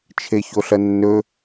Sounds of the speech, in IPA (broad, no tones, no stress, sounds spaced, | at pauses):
t͡ʃʰ e ç o ɬ ɐ nː ɵ